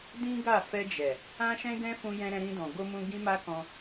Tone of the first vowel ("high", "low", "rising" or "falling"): high